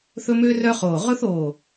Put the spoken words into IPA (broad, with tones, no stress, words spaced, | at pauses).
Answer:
θɵ˥mø˥rœ˥ χoː˧˩ ʁɵ˥θoː˧˩